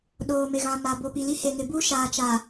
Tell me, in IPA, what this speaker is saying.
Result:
ɗoː˨mɪ˨ ɣã˨ma˨ bo˨pi˨li˦ he˨ŋɪ˨ bu˦ʃaː˨t͡ʃa˨

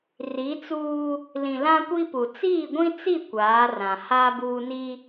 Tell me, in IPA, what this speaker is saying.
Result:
ri˨˦t͡suː˦ | lĩ˨lã˦kʷi˦pu˨ t͡siː˦˨ɡʷĩ˦t͡si˦˨ kʷaː˨˦rã˨ haː˦ buː˦ni˦

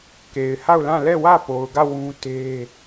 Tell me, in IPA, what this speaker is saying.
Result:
ke˨ɪ̯ha˦˨ʊ̯lã˦˨ lɛ˦˨wä˦˨po˨ʊ̯ɡä˦˨ wũ˦te˦

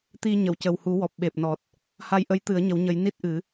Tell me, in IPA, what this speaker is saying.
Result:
t̪i˧ ɲə˨˩˨wcə˨˩whu˨˩˦ wɔ˨˩p̚ ɓe˨˩p̚nɔ˨˩t̚ | ha˧jʔə˧˥j t̪ɨ˨˩˦ə̯ɲə˨˩˦wɲə˨˩˦j ni˦˥t̚ʔɨ˨˩˦

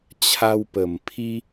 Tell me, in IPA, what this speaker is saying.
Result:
t͡ɕʰa˧wpə˨˩mpʰi˦

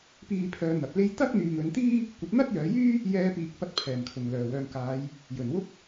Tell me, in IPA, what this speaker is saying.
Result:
piː˧pʰœː˨˧ n̪ɐ˨p̚le˥j t̪ɐ˥k̚n̪yː˨ŋ ɵ˨˧nt̪iː˥ | kʷɐ˨˥t̚n̪ɐ˥t̚jœː˨˧jyː˥ | jɛː˧piː˨k̚ pɐ˧t̚ pʰɛː˨˩mkʰʊ˨˩ŋlœː˨˩wœː˨ŋ kaː˨˧j | jɵ˨˩nwʊ˥k̚

